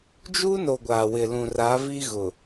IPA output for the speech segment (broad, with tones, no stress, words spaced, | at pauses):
d͡ʒu˦no˨ ɡʷaː˨wɪ˨lũ˨ ra˨˦vi˦ ɣʊ˨